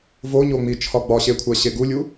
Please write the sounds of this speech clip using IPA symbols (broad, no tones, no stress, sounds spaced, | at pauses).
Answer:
v o ɲ o ŋ͡m i t͡ʃʰ ɒ ɡ͡b ɒ ɕ e kʷʰ æ ɕ e ɡ u lʲ u